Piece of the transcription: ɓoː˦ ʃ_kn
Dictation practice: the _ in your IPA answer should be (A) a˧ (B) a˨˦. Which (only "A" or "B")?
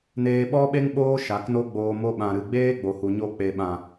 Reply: B